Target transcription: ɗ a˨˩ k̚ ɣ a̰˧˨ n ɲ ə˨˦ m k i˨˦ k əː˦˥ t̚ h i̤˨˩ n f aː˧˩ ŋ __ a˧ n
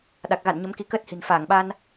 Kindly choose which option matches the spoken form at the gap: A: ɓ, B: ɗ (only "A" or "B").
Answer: A